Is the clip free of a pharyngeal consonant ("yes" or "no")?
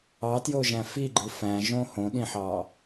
no